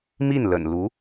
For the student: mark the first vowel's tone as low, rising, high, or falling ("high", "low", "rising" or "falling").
falling